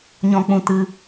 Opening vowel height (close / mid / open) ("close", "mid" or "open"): mid